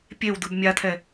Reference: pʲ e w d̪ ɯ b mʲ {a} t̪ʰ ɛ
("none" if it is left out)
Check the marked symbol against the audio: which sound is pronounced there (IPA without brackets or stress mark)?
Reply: a